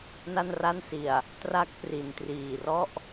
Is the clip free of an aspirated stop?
yes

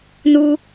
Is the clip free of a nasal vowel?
yes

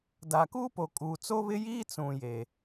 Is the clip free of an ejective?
no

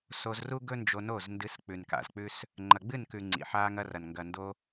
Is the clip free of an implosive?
yes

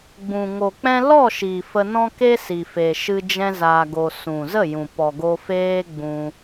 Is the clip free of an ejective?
yes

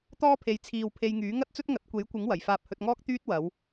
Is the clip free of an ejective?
yes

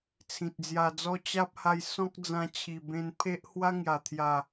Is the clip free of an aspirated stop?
no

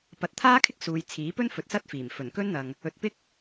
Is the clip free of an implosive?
yes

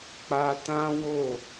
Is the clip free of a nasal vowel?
no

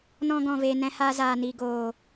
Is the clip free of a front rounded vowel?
yes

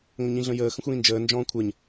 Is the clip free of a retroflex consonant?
yes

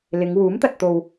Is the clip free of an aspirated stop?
yes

